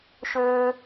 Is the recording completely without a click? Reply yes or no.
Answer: yes